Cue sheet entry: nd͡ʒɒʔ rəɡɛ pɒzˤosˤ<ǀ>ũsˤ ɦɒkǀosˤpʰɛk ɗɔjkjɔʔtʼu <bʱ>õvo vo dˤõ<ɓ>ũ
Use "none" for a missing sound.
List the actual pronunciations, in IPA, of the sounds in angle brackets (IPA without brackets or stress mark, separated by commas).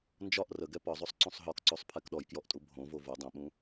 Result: ǀ, bʱ, ɓ